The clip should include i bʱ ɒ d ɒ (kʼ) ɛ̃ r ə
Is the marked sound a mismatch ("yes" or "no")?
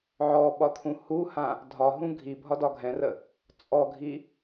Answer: yes